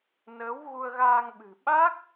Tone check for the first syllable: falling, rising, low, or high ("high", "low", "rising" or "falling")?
rising